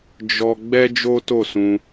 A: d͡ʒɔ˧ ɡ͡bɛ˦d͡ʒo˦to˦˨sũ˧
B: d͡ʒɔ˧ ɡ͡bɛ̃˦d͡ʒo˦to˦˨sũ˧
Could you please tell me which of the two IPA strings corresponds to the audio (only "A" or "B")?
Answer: A